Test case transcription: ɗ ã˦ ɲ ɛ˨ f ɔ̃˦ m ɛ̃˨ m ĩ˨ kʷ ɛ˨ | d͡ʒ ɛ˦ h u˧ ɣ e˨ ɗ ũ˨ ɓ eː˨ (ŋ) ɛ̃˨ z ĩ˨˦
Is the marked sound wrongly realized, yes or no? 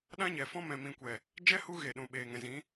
no